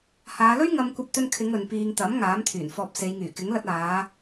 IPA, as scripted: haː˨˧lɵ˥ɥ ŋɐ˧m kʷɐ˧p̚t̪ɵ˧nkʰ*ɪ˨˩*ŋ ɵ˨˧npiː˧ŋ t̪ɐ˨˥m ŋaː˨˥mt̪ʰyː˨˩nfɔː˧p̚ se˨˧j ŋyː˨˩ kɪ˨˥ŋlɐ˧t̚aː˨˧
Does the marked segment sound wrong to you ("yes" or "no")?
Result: yes